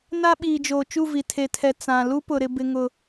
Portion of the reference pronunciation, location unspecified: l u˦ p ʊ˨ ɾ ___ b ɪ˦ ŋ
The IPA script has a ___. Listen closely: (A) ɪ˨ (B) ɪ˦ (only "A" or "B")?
B